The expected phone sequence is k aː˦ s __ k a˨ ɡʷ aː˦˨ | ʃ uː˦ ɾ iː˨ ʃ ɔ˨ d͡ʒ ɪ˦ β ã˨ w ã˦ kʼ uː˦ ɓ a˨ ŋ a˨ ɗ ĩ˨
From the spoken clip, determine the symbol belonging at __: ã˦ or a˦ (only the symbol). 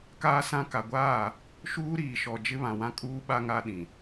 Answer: ã˦